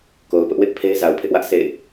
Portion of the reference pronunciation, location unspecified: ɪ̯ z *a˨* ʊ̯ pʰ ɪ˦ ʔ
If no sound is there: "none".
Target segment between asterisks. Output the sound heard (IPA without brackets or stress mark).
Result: a˨